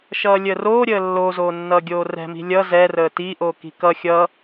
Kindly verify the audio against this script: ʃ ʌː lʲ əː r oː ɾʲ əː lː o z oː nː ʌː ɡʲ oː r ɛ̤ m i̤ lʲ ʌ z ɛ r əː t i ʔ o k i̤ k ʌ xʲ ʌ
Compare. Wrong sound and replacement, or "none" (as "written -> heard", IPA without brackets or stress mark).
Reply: none